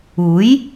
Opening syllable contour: rising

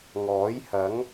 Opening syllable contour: rising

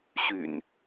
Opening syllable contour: low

